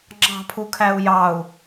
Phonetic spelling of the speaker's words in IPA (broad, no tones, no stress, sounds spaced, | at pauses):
ŋ͡ǁ ɑ̤ pʰ u kʰ æ u̯ j ɑ u̯